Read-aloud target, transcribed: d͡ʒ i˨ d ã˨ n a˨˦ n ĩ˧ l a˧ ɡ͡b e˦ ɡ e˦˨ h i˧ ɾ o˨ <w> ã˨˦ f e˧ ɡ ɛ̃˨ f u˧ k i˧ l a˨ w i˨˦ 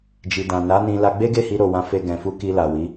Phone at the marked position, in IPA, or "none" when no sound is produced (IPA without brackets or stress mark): w